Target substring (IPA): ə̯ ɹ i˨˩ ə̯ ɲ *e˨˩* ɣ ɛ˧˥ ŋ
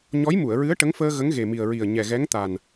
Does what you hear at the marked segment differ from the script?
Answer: yes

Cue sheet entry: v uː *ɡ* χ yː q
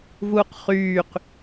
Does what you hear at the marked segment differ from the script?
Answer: yes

